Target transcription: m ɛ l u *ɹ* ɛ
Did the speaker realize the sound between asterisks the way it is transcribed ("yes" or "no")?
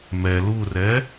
no